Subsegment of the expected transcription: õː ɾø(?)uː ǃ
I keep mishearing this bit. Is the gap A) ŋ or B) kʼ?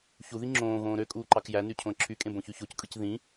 B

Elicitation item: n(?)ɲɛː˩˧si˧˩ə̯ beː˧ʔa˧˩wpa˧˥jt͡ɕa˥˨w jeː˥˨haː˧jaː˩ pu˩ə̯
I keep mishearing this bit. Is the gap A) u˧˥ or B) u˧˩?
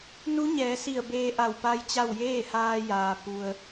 A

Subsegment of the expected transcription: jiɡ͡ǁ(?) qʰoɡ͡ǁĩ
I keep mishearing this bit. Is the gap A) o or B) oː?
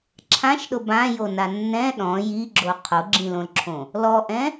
A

